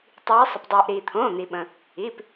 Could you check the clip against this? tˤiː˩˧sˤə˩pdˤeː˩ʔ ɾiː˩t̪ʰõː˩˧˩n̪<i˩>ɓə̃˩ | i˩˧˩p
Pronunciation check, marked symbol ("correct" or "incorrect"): correct